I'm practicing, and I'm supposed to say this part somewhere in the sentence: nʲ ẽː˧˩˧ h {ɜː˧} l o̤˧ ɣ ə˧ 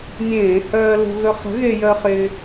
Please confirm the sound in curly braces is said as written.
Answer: yes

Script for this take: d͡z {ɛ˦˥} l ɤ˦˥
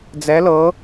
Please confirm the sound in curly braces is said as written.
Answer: yes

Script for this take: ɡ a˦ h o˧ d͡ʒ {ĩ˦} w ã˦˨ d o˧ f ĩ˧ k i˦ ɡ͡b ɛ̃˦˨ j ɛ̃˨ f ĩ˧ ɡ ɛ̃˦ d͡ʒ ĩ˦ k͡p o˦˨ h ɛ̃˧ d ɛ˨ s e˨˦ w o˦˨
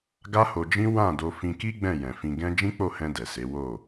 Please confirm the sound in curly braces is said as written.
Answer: yes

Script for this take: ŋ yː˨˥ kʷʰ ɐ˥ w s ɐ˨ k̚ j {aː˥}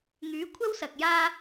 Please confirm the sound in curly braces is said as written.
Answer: yes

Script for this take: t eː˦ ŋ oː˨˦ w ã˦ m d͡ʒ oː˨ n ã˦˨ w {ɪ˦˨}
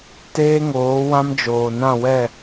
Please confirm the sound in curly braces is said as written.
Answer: no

